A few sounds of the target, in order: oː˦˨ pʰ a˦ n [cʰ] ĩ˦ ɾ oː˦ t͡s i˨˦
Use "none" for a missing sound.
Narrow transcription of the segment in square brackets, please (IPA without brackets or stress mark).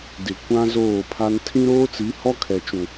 tʰ